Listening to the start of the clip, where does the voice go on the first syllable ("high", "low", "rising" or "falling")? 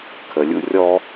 low